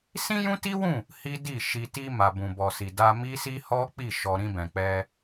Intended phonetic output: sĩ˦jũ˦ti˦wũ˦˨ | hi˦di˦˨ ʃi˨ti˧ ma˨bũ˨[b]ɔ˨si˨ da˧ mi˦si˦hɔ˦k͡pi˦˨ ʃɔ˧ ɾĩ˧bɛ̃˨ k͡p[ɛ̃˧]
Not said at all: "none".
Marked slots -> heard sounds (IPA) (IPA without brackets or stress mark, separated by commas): b, ɛ˧